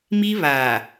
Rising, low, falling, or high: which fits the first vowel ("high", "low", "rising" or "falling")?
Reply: high